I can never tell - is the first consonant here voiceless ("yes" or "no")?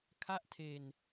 yes